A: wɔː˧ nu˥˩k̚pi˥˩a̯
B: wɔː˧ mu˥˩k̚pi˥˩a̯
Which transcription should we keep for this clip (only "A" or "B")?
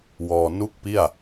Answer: A